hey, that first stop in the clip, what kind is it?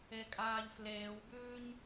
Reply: ejective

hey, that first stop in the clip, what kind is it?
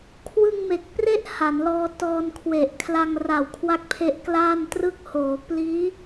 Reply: aspirated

